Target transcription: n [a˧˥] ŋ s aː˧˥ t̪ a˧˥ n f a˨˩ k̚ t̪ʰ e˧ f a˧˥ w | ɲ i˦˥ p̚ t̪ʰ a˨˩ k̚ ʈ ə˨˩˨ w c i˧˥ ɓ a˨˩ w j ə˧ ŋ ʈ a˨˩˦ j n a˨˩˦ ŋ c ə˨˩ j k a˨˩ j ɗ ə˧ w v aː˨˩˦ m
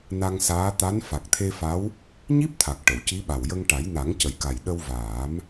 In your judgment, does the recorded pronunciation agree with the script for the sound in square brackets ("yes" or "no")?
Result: no